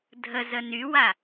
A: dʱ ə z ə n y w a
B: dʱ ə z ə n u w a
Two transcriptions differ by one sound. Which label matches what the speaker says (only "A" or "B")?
A